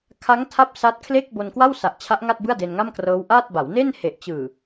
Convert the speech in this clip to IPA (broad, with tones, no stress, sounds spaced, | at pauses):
kʰ a˦˥ ŋ tʰ a˦˥ p̚ s a˦˥ t̚ kʰ l e˥˩ k̚ b o˧ n k w a˥˩ w s a˨˩ ʔ t͡ɕʰ a˦˥ ʔ ŋ a˥˩ t̚ b ɯ˥˩ a̯ d e˧ n ŋ a˥˩ m k r ɤː˦˥ w ʔ a˥˩ t̚ b a˩˦ w n e˥˩ n h e˨˩ ʔ t͡ɕ ɯː˨˩